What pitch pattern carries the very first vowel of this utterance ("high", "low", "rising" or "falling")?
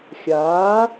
rising